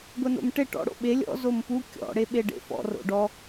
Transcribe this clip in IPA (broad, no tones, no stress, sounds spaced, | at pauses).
ɡʷ ɛ n o̰ m ʈ e ʈ ɔ̰ ɽ o̰ ɓ e lʲ ɔ̰ z o m p u kʲ ɔ̰ ɽ e ɓ e ɖ ḛ f ɔ̰ r o̰ ɖ ɔ